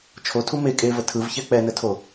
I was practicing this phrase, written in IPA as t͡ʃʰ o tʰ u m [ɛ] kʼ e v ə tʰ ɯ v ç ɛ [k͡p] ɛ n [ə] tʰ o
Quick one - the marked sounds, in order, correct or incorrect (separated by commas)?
incorrect, correct, correct